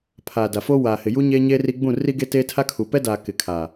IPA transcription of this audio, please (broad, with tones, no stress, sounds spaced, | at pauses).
pʰ aː˨ d a˨ f oː˦ w aː˨ h ɪ˨ j u˦ ɲ e˦ ɲ eː˦ r i˦ ɡ͡b ũ˦˨ r i˦ ɡ e˦ t eː˦ tʰ a˦ kʰ u˨ p ɛ˦ d aː˨ k ɪ˨ kʰ a˨